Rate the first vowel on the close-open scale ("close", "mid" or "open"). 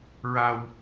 open